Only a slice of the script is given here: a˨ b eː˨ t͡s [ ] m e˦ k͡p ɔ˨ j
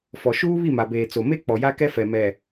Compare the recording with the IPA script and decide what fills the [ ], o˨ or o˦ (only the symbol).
o˨